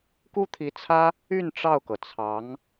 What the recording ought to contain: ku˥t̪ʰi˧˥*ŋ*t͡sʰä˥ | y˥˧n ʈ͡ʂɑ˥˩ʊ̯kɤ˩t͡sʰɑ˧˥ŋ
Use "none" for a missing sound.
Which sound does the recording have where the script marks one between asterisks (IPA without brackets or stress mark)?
none